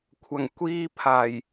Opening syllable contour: low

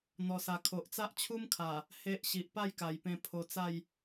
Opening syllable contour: low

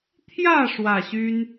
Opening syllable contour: falling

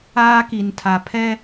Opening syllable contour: high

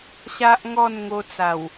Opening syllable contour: high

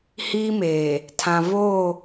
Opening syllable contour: high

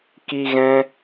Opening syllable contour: high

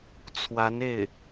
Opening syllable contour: rising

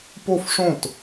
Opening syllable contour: falling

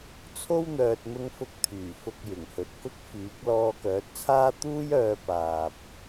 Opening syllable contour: high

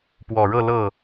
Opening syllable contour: low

